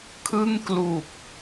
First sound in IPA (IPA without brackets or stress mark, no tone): kʰ